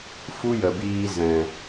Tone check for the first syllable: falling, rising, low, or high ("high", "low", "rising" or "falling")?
high